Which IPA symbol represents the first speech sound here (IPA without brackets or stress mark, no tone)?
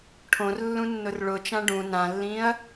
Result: ʈʰ